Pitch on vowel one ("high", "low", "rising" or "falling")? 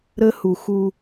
high